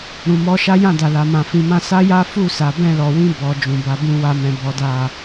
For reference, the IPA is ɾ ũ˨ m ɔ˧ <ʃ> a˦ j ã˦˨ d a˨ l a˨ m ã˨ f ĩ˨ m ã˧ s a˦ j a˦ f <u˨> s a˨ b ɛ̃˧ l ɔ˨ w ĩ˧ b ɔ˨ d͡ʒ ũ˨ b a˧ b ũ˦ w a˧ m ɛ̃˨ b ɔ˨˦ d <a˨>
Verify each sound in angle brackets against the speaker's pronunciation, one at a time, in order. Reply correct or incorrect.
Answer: correct, incorrect: u˦˨, incorrect: a˦˨

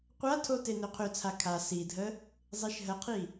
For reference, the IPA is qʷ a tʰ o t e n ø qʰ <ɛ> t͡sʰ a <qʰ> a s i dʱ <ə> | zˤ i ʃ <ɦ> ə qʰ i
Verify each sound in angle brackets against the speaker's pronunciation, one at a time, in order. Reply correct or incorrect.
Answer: incorrect: ø, incorrect: kʰ, correct, correct

